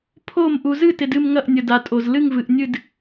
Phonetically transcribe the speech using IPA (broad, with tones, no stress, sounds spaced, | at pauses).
pʰ o˥˨ m ʔ u˨ z ɨ˥˨ t ɪ˨ d ɨ˥˨ m ŋ ɐ˥˨ ʔ nʲ ə˨ d a˨ tʼ o˨ z l ɨ˥˨ ŋ v ɨ˨ ʔ nʲ ɨ˥˨ d